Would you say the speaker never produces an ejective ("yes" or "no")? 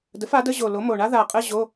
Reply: no